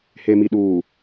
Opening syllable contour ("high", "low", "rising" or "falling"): low